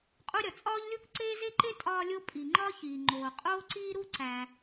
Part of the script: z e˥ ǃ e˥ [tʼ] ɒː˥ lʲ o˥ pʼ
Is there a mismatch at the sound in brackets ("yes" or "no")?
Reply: no